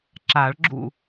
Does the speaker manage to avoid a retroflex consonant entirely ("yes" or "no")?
no